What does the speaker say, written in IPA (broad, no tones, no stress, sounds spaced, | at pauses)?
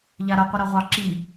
ʎ a ɾ ɐ qʷ i ɾ ɑ ʁʷ ɑ ǁ i